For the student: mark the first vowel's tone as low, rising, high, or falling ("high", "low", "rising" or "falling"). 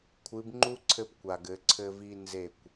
rising